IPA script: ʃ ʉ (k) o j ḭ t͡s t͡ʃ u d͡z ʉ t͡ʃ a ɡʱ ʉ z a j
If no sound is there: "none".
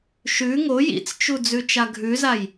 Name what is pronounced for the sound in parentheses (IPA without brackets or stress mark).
ŋ